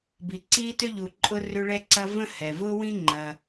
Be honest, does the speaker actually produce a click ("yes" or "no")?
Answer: yes